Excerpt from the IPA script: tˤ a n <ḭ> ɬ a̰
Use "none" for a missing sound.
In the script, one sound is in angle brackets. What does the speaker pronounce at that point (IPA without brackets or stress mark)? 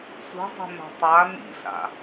ḭ